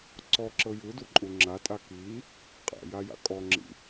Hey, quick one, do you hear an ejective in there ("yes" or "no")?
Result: yes